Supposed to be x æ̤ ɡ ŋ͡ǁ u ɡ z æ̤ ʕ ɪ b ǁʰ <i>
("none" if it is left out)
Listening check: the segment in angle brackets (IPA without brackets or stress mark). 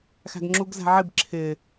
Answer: ɪ